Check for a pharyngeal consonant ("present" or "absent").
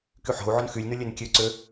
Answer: present